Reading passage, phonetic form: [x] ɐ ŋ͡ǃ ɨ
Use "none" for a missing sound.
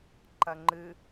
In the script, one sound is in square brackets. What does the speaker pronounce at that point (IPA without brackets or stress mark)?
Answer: ǃ